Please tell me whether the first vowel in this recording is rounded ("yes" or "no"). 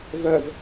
yes